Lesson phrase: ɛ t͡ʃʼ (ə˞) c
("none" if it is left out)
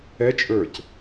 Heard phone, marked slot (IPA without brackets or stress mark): ə˞